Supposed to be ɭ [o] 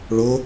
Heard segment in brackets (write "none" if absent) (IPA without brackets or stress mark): o